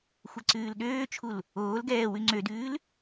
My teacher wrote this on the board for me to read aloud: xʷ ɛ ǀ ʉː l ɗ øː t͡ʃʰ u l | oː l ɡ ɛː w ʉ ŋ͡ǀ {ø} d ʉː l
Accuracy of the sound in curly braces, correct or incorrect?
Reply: correct